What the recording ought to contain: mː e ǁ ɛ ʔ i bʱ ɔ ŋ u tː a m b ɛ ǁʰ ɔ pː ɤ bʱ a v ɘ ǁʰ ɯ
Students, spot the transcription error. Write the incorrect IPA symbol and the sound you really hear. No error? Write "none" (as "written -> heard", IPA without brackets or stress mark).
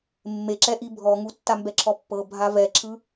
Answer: ɘ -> ɛ